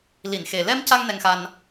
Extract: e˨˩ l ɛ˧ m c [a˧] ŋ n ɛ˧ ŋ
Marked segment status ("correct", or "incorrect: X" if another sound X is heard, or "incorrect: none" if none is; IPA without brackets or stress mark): correct